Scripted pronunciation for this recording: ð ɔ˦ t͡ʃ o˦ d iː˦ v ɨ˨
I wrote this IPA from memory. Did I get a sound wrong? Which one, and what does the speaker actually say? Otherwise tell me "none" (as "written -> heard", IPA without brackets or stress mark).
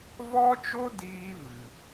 ð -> v